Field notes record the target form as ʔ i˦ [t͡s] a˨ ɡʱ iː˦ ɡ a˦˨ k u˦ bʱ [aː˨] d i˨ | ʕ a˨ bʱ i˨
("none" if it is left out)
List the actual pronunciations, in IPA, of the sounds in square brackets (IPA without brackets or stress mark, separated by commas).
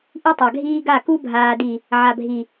tˤ, aː˨